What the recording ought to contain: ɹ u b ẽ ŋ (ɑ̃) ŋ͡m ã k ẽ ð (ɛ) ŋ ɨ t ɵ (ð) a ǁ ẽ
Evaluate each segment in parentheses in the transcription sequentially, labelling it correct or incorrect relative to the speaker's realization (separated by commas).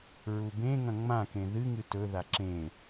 incorrect, incorrect, correct